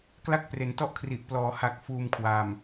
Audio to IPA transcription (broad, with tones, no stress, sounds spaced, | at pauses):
k l a˥˩ k̚ p r e˩˦ n t ɔ˥˩ ʔ kʰ r i˨˩ ʔ p l ɔː˩˦ h a˨˩ k̚ f uː˧ m kʰ w a˨˩ m